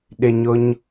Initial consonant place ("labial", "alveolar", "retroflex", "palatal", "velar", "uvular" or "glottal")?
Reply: alveolar